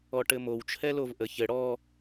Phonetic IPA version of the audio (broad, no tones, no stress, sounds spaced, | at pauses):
ɔ ʈ ɘ m o w t͡ʃʰ ɛ l o v ʔ ə ç ɘ ɽ ɔ